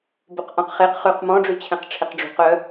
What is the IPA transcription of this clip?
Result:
b ʉ q ʔ ɔ̃ q χ e q χ ʉ q m ɔ̃ ɖ͡ʐ ʉ t͡ɕʰ ɛ̃ q ʈ͡ʂʰ e q ɖ͡ʐ ṳ q œ

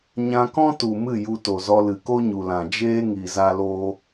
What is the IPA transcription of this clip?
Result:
ɲ ã˧ k ɔ̃˦ t u˨ m ɨ˦˨ j u˧ t o˨ z ɔ˧ l ɨ˨ k o˦ ɲ u˨ l ã˨ d͡ʒ eː˦ ŋ i˨ z a˦ l oː˦

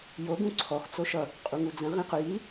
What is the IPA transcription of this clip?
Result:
j o ɡ ũ ǀʰ ɔ x t͡s o ʃ ʌ | qʼ u ŋ u d͡z ə̃ ʁ ĩ q ə j i

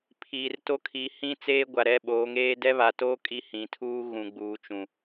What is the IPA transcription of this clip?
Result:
pʰ iː˨ r t o˦ kʰ i˨˦ h ĩ˦ t͡s eː˦ ɡʷ a˨ ɾ ɛ˦˨ ɓ oː˨˦ ŋ eː˦ d ɛ˦ β a˨ t oː˦ kʼ i˦ h ĩ˨ tʰ uː˦ ɣ ũ˨ ɡ͡b uː˨ t͡ʃ ũ˨

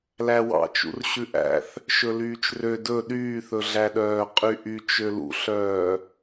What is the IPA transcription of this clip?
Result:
l æ w ɑ̰ t͡ʃ ṵ r ɕ ʉ ʔ æ̰ θ | ʃ ɵ l yː t͡ʃ r ø d ɵ ɗ yː θ ɵ ɮ æ ɗ œː qʼ y ʔ y t͡ʃ ø l ṵ ɬ œː

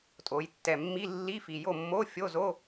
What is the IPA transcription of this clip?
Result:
tʼ o˩˧ j tː ɛ˨˩ mː i˧˥˧ lː i˧˥˧ f i˨˩ j o˥˨ mː o˧˥˧ fʲ o˧˥˧ z o˧˥˧

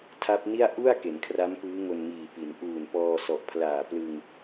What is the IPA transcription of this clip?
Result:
tʰ a˦˥ p̚ n i˥˩ a̯ ʔ u˥˩ a̯ k e˩˦ n kʰ r a˦˥ m p ɯː˦˥ ŋ o˧ n m iː˨˩ p i˩˦ n ʔ uː˨˩ n p ɔː˧ s ɔ˨˩ ʔ pʰ l aː˨˩ p l ɯ˧ ŋ

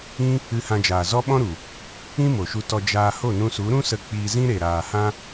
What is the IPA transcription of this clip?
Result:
ĩ˦ | ɨ˧ h ã˧ d͡ʒ aː˨ z ɔ˦ ɓ ɔ̃˦ ɾ u˨ | ĩ˦ m o˨ ʃ u˧ t ɔ˧ d͡ʒ aː˧ h o˦˨ n ũ˧ s u˨˦ ɾ ũ˦ s ə˧ k͡p iː˧ z ĩ˦ ɾ e˨ ɾ aː˨ h ã˧

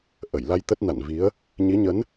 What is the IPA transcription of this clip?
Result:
ʔ ə˧˩ j l a˧ j t̪ ə˦˥ t̚ n a̰˧˨ n v i˨˦ ə̯ | ɲ i˨˦ ɲ ə˨˦ n

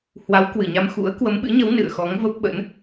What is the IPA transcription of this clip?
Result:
h w a˨˦ w k w ɨ˧˩ ɲ a˧ m x ṵ˧˥ ə̯ k w ə˨˦ m ɓ ɨ̰˧˥ ɲ ə˨˦ w n ɨ̰˧˨ ə̯ x ɔ˨˦ ŋ v ə˦˥ p̚ ɓ ə̰˧˥ n

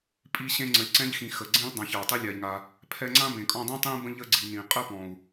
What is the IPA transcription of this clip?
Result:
pʼ i˦ ɕ ẽ˦ ŋ͡ǀ ə˨ lʲ ǀ ɛ̃˦ ʎ x ĩ˨ x ə˨ ɡ͡ǀ ẽ˥ lʲ dˤ ã˨ ç a˩ tˤ i˥ lʲ a˨ ʎ ŋ a˨ | pʰ ɛ˦ ŋ͡ǀ ã˥ b ẽ˨ kʼ ɔ̃˦ dˤ ĩ˥ tˤ ĩ˦ b ə̃˦ ʎ ə˦ ɡ͡ǀ i˨ n ĩ˩ qʼ ə˥ p ɔ̃˩ u̯

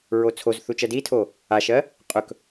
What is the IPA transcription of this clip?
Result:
ɹ o t͡sʰ o z θ u t͡ʃ ɜ d i tʰ o | a ʃ ɜ | qʼ ɵ k

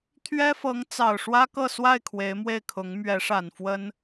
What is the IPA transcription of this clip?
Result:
t̪ʰ ɥ ɛ˥ f ɤ˧˥ ŋ t͡s ɑ˨˩ ʊ̯ ʂ w ä˥ k ɤ˥˧ s w a˥˩ ɪ̯ kʰ w e˧˥ ɪ̯ m w e˥˩ ɪ̯ kʰ ʊ˧˥ ŋ m ɥ ɛ˧˥ ʂ a˨˩ n f w ə˥ n

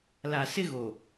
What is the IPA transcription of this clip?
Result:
l a˨ s ɪ˦ ɣ o˨

